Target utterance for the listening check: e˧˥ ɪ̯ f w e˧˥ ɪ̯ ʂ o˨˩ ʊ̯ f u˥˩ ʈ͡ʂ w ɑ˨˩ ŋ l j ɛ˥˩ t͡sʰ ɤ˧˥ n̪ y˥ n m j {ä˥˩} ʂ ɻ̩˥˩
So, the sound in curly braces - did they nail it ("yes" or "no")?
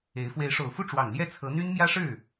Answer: no